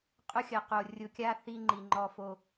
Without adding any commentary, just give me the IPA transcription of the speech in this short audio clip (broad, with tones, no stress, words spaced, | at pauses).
qʼʊ˦xʲɐ˨ qo˨ rʲʊ˨kʲa˦ θi˦ŋ͡ǃi˨ŋ͡ǃɔ˦ fo˦